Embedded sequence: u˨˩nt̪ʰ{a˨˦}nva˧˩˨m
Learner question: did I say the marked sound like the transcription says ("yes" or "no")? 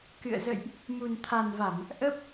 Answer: no